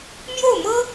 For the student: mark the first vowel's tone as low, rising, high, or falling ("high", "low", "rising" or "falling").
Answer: falling